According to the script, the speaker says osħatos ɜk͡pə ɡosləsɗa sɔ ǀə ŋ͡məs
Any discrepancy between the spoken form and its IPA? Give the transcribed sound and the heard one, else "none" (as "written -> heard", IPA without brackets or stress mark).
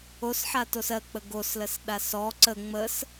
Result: none